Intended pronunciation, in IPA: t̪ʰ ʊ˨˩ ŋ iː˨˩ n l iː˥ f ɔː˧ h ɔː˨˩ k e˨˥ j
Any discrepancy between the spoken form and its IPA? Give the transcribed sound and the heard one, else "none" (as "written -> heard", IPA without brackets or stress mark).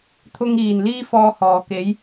ʊ˨˩ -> ʊ˧